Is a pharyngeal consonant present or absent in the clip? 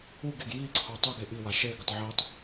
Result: present